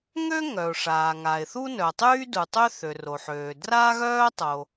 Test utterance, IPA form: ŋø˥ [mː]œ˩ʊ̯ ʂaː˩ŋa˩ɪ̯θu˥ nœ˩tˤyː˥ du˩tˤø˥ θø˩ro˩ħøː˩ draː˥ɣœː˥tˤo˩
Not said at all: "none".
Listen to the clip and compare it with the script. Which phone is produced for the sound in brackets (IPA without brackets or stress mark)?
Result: ŋ